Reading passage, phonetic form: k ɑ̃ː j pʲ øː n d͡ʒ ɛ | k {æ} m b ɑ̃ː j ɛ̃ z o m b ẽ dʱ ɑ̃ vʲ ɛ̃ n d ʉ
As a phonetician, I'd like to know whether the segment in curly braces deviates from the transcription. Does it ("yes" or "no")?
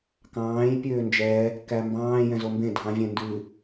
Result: no